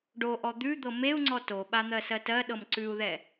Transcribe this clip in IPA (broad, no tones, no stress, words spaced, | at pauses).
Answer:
ɖoʔɔ d̪ʉd̪ɤ meu̯ ŋ͡ǀɔtoɓa n̪ɜsɜtɜɗɤm ǀʉu̯ðɛ